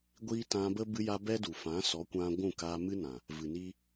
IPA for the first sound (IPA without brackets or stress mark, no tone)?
ɡʷ